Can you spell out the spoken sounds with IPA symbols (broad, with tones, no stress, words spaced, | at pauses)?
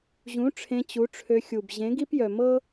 ʑũ˨˦ ʈ͡ʂʰẽ˧t͡ɕu˨˦ʈ͡ʂʰø˧xʲu˨b ʑẽ˨˦ɡi˦pjœ˨mɤ˦